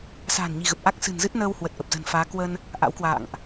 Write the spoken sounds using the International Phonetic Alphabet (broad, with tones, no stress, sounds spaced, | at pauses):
s a̤ː˨˩ n ɲ i̤˨˩ ɣ ə˨˩ p̚ ʔ a˦˥ k̚ s ɨ̤˨˩ n z ɨ˦˥ t̚ n əː˧ w h w ə˨˩ t̚ ʔ ə˨˩ p̚ z ə̤˨˩ n f aː˨˦ k w ə˧ n | ʔ a̰˧˥ w k w a̰ː˧˨ ŋ ʔ